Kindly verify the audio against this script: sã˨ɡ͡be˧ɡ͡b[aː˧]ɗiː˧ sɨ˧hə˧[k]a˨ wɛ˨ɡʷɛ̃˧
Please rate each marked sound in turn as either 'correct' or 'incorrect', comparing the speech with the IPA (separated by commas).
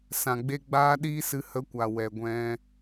correct, incorrect